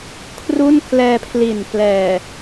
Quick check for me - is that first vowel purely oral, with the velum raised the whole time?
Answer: yes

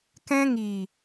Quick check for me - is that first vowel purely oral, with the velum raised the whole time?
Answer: no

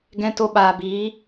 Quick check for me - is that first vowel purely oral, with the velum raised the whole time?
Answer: no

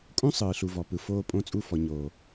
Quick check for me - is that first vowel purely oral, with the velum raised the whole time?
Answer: no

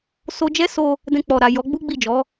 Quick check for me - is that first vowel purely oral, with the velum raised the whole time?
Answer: yes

